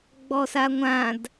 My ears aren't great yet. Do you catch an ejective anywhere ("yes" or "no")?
no